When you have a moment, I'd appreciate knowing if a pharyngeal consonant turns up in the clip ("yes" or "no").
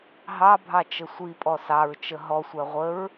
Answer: no